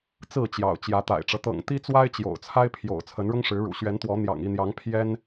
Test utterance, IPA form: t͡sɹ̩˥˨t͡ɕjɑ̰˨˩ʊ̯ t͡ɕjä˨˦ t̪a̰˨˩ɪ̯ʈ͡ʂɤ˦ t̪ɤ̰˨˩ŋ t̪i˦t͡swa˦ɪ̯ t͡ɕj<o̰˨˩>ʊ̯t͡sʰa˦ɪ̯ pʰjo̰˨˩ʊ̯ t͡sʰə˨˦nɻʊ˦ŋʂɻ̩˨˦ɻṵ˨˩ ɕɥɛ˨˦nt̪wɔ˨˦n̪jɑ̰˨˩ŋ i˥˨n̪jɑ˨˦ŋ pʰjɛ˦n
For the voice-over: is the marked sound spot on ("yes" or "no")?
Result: yes